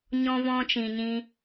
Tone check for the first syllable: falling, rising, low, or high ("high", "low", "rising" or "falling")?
high